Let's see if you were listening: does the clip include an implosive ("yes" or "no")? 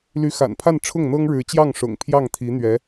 no